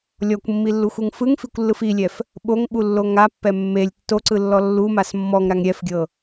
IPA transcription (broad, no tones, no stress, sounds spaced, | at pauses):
lʲ ɔ kʷ mː i lː u xʷ ɯ ŋ f ɯ ŋ f i kʷ lː ɯ f i lʲ ɛ f | ɓ o ŋ ɓ u lː o ŋ a pː ɛ mː e lʲ tː o ǀ ɯ lː ɔ lː u m a s mː ɔ ŋ ɾ a ŋ ɾʲ ɛ f ɡʲ ɤ